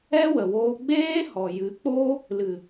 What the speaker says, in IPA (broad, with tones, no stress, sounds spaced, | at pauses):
ɛ˦ w ə˨ w oː˧ ɡ͡b eː˦ h ɔ˨ j ɨ˨˦ k͡p oː˦ | l ɨ˨